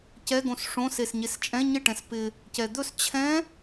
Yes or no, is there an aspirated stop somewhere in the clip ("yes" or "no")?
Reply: yes